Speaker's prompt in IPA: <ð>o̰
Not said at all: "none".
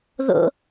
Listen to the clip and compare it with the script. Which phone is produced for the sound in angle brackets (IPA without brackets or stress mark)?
ð